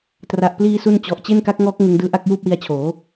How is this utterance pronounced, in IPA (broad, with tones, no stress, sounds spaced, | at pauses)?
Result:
t r a˨˩ ʔ p l iː˧ s u˧ n t͡ɕ ɔ˨˩ ʔ t͡ɕ e˥˩ n k a˦˥ k̚ ŋ ɔː˦˥ k̚ ŋ ɯ˧ ŋ d ɯː˦˥ ʔ a˥˩ k̚ j uː˥˩ p̚ w i˧ a̯ t͡ɕʰ oː˩˦